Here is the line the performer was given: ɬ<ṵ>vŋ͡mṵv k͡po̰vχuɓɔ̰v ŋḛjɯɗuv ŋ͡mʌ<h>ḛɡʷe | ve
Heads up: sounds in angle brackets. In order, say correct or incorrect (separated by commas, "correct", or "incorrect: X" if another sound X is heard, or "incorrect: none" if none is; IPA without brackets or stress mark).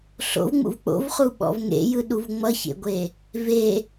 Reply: incorrect: o̰, incorrect: ç